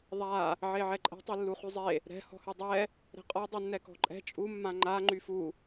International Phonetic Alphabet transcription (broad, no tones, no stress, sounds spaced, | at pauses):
ðˤ a | ʕ e ʕ ɛ ǃʼ ɛ̤ tˤ e lː u χ y zˤ e | ɾ ɛ̤ h ɔ̤ h y dˤ ɛ | ɾ ɛ̤ qʼ ɔ dˤ y nː ɛ k ɔ̤ ǃʼ ɛ̤ t͡ʃʼ u mː ã ŋ͡ǃ a ŋ͡ǃ y f u